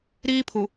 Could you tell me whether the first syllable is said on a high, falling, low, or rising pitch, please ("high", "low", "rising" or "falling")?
high